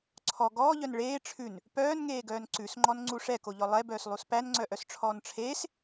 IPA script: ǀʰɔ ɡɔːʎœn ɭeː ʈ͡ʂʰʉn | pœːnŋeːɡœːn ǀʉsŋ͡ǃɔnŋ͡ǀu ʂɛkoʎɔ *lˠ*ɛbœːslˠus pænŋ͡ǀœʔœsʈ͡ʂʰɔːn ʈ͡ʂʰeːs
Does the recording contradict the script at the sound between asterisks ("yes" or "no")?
no